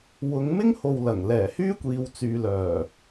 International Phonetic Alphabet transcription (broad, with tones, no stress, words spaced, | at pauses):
wʊ˨˧ŋmɪ˥ŋ ho˧wlɐ˨˩ŋ lɛː˨˩hyː˥ kʷiː˨˧wt͡syː˨ lœː˨˩